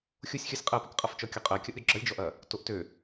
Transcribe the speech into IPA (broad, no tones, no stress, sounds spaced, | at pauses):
xʲ o sʲ xʲ ɔ sʲ qʼ ɜ p ø k qʼ ʌ f t͡ʃ ɔ kʲ ɔ qʼ ɜ kʲ ʌ ʔ ɾʲ ɔ ɡ͡ǁ ʌ lʲ d͡ʒ ɔ ʔ ɐ | t o ʔ t ø